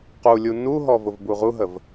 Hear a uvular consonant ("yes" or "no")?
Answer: yes